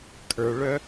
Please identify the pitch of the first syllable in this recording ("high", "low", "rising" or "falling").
low